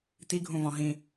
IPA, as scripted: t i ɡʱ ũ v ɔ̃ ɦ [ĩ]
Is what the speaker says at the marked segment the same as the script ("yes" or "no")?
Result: yes